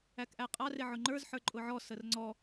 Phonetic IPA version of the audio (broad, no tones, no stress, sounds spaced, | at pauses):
æ k ʔ æ qʼ ɑ r ɪ ʕ ʊ ŋ͡ǃ ə˞ z ħ ə˞ ǃʼ ʊ ʕ ɔ s ə r ŋ͡ǀ ɔ